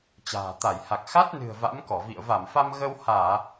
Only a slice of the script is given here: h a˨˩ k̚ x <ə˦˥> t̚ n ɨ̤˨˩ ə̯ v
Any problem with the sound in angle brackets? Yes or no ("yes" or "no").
yes